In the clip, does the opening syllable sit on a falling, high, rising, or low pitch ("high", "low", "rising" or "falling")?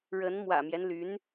rising